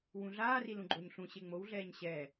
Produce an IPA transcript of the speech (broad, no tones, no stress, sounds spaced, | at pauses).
w ũ ɮ aː r i l ũ ɡ͡ǃ o ɲ ɬ ũ ɕ e ŋ͡m o w ɮ ɛː ɲ ɕ ɛː